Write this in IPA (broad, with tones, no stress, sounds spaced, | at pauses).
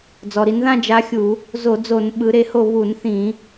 d͡z ɔ˩ ɾ i˩˧ n ð ã˥˧ d͡ʒ a˨˥ xʲ u˧˩˧ | z o˧˩˧ d͡z o˧˩˧ n ɓ ɯ˩˧ ɾ e˩˧ h o˧˩ β u˧˩˧ n θ ĩ˧˩˧